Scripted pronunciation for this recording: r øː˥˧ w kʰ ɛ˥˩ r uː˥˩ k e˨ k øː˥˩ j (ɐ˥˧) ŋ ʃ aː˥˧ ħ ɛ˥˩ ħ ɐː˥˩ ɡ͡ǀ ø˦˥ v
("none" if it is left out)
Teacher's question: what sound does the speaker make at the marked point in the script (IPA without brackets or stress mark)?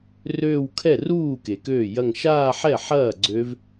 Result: ɐ˥˧